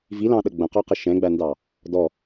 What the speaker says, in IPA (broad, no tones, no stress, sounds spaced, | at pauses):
v i l ɑ̃ ɗ ə ɡ͡b ə̃ q ɔ q ɪ ʃ ɛ̃ ɡ͡b æ n d ɑ | d ɔ